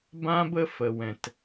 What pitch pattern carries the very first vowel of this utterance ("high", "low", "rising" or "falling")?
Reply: high